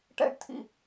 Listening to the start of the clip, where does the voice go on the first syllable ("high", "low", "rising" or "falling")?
high